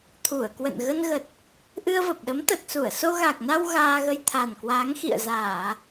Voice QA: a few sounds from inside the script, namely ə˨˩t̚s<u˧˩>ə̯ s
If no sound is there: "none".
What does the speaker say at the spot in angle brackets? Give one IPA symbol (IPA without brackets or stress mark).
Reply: u˧˩